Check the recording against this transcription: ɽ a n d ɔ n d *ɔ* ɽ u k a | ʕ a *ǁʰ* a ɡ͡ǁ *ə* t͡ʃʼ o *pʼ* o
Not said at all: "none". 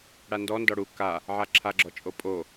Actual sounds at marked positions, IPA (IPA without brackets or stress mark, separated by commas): ɔ, ǁʰ, ɔ, pʼ